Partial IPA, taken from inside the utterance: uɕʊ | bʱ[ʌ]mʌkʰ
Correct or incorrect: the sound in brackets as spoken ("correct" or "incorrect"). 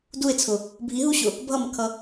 correct